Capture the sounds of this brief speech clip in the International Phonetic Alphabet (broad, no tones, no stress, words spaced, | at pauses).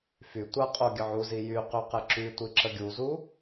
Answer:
fy tʷaqʼo ɡʲəʕuzi jy qyqɛǁytʷi ǁəɡʲuzu